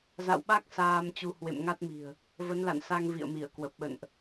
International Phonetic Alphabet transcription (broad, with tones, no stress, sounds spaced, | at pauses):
z a̰˧˨ w ɓ a˦˥ k̚ s aː˧ m t͡ɕ u˧ h w ḛ˧˨ m ŋ a˦˥ t̚ m i̤˨˩ ə̯ | v ə˨˦ n l a̰˧˨ n s a˧ ŋ v ḭ˧˨ ə̯ m i˧˩ ə̯ k w ə˨˩ p̚ ɓ ə̰˧˨ n ʔ